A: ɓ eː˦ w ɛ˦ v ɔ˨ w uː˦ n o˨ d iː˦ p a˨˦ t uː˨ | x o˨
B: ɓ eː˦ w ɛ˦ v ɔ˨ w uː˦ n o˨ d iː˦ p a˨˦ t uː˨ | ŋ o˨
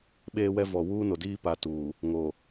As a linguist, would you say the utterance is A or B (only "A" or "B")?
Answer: B